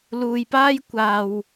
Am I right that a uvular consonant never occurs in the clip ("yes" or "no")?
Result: yes